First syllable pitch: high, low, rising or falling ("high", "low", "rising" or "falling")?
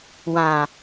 low